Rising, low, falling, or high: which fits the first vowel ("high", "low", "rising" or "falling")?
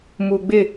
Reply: low